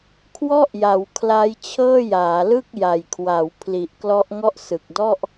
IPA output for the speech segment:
kʰ w ɔ˥˩ ʔ j a˩˦ w kʰ l a˦˥ j t͡ɕʰ ɤː˥˩ j aː˩˦ l ɯ˥˩ k̚ j a˨˩ j kʰ w a˩˦ w pʰ l i˨˩ ʔ k l ɔ˦˥ ʔ ŋ ɔ˥˩ ʔ s ɯ˨˩ k̚ d ɔ˥˩ ʔ

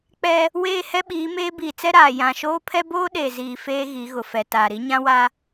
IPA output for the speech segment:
k͡p ɛ˦ | w eː˦˨ h ɛ˦ ɓ iː˨˦ m eː˦ b iː˨ t͡s ɛ˦ ɾ aː˨ j ã˨ ʃ oː˦ pʰ ɛ˦ b oː˦ ɗ e˨ z iː˨ f eː˦ ɣ i˨˦ ɣ ʊ˨ f ɛ˨ t aː˨ ɾ i˦ ɲ ã˦ w a˦

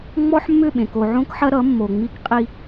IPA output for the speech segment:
ŋ͡m ɔ˦ ħ mː ʏ˦˨ ɓ ẽ˨ k o˨ ʕ õ˦ k ħ ɐ˦ ɾ ʌ˨˦ mː o˨ ŋ͡m i˦ k qʼ i˦

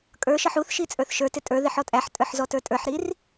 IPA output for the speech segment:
kʼ ə˞ ʃ ʌ ħ u θ ʃ i t͡sʼ ə˞ θ ʃ ə˞ t ɪ tʼ ə˞ ð ɪ ħ ɔ tʼ æ ħ tʼ ə˞ ħ z ɔ t ə˞ tʼ ə˞ ħ ɾ i r

